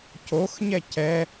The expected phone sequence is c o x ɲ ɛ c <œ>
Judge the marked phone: incorrect: ɛ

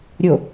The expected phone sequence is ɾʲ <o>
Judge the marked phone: correct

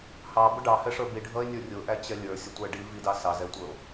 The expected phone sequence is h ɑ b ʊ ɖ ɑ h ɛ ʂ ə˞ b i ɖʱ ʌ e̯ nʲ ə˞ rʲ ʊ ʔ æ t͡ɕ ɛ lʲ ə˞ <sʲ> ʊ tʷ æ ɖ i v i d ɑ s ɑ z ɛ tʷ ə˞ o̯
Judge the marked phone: correct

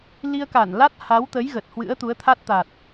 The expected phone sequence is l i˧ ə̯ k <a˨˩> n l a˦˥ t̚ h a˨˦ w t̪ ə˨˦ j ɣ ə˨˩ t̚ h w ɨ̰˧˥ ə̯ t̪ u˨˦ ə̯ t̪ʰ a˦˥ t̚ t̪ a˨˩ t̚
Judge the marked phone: incorrect: a˧˩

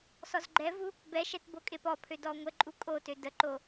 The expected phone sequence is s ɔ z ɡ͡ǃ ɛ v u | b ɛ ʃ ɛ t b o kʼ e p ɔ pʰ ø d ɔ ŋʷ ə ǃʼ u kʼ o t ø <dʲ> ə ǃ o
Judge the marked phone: incorrect: d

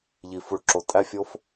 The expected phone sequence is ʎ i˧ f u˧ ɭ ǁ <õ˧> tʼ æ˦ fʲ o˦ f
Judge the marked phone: incorrect: o˧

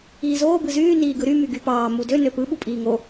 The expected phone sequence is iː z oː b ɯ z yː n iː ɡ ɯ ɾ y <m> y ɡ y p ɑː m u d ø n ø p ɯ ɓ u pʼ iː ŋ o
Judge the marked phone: correct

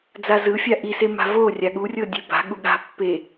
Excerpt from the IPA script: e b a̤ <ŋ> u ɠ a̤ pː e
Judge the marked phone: incorrect: ɠ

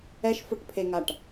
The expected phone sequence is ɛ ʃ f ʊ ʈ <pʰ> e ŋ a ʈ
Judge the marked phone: correct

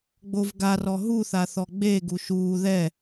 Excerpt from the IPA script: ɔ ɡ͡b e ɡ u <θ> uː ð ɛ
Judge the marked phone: incorrect: ʃ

